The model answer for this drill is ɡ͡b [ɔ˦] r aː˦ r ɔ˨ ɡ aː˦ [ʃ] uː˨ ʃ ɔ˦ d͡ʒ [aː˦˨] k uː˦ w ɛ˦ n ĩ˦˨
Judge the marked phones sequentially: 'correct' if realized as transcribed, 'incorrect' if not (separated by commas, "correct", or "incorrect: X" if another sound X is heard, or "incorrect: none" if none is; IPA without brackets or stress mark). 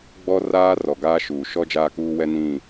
correct, correct, correct